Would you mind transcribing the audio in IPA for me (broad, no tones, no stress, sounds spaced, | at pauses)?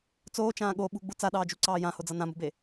t͡s oː t͡ʃ ãː ɠ o ɓ ṳ ɡ͡b u t͡s a ɗ ɑː d͡ʒ u ǀ ɑː j ã h o d͡z ʌ n ã m ṳ b e